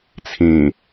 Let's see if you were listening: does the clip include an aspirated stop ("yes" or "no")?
yes